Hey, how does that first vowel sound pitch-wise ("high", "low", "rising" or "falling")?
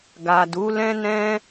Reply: low